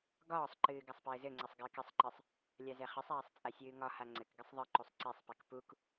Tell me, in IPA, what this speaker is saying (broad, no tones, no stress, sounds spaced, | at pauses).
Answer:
ɡ ɒː sˤ ǃ ɨː ɡ a sˤ p ɘː z ɘ ŋ͡ǀ ɘ sˤ ɡ ɘː k ɘ sˤ ǃ ɨ sˤ | lʲ a z ɛ χ ɘ sˤ aː sˤ t͡sʼ a sʲ ɨː ŋ ɒ h a ŋ͡ǀ ɘ k ɡ ɨ sˤ ðˤ ɨ ǃ u sˤ ǀ ɛ sˤ p ɛ k p u k